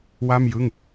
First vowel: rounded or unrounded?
unrounded